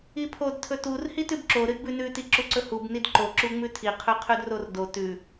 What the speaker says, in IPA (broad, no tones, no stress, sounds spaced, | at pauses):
i pʰ o d tʰ ɵ t u r h i t ʉ b ǁ o ɾ ɨ d b ʉ n ʉ t i ǁ u ǀ ɵ h u b n i d ǃ o ǁ u ŋ͡m ʉ tʰ i qʰ ʉ qʰ ʉ d r o r d o t ʉ